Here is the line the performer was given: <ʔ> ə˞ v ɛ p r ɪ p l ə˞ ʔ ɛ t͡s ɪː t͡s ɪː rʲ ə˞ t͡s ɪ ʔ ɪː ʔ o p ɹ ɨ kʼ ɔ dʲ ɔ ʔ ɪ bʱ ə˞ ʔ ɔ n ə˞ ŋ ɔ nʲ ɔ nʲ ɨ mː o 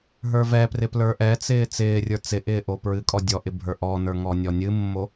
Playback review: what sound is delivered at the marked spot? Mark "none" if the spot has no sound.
ɦ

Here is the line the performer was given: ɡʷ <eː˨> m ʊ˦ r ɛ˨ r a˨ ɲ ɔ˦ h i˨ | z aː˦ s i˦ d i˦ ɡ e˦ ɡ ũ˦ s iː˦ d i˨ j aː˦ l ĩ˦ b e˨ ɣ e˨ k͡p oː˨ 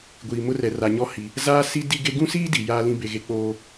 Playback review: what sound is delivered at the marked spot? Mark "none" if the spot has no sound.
iː˨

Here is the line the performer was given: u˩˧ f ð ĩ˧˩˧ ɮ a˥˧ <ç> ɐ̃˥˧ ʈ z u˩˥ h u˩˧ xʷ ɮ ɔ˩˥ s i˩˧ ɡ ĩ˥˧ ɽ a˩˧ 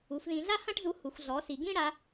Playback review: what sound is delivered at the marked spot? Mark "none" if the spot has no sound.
h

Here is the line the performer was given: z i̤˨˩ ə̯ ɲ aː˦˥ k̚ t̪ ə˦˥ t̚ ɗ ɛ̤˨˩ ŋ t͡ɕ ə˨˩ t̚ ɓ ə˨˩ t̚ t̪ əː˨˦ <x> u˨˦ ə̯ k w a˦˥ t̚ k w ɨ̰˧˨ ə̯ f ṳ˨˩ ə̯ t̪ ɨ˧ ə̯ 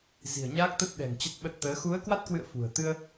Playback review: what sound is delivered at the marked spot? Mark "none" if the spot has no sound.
x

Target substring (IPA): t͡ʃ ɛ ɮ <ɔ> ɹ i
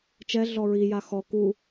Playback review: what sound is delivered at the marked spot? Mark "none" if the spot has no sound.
ɔ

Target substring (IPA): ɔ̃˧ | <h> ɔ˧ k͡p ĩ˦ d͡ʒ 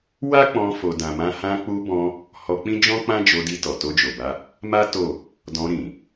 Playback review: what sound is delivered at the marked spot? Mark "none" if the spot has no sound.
h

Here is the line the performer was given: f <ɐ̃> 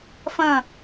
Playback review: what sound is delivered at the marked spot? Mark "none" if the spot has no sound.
ɐ̃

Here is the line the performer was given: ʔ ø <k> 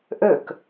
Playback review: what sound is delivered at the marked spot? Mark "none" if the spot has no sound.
k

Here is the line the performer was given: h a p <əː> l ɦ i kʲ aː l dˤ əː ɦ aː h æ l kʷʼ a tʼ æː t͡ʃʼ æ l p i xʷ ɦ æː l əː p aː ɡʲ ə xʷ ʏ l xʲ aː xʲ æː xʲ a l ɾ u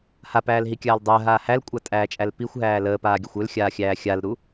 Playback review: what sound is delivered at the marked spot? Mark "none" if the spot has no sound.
æː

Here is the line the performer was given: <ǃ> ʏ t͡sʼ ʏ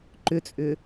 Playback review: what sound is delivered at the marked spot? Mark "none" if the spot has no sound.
ǃ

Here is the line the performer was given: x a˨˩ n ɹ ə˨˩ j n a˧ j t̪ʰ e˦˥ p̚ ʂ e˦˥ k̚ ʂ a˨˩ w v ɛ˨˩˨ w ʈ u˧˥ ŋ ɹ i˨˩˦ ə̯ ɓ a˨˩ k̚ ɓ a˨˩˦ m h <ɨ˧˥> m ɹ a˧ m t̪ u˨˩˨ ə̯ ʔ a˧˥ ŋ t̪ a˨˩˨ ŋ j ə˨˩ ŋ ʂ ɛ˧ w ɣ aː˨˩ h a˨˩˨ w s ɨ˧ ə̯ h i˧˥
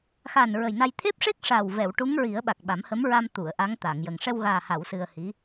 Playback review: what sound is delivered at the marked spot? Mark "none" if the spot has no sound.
ə˧˥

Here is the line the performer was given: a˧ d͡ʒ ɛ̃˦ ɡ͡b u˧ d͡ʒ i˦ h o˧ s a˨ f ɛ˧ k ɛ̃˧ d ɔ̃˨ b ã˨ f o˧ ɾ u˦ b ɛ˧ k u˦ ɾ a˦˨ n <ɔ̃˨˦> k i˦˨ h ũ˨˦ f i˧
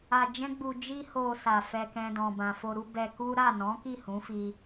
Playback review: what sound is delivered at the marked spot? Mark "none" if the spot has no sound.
ɔ̃˨˦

